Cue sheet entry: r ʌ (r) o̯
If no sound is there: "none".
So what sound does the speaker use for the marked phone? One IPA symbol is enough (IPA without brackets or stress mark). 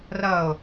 none